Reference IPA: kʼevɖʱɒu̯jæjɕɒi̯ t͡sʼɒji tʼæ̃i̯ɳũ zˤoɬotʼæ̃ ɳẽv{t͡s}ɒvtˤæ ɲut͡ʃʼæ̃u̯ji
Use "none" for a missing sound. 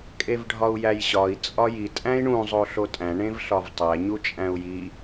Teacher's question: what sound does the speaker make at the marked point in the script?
ɬ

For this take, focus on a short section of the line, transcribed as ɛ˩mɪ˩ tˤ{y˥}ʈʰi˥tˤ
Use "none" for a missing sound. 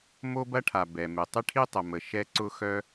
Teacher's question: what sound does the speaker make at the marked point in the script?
ɪ˥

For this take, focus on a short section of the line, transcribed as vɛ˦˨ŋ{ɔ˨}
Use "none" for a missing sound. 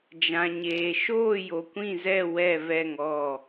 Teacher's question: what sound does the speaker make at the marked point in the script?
ɔ˦˨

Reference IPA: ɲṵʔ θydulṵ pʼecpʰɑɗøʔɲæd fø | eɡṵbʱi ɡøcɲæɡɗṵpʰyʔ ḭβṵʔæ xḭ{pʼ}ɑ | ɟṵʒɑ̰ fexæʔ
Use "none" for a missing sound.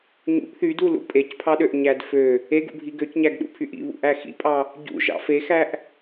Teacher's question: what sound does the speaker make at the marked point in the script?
pʼ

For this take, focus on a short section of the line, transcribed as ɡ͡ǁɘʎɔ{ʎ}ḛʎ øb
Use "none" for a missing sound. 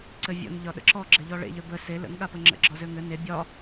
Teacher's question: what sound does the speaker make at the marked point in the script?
ɭ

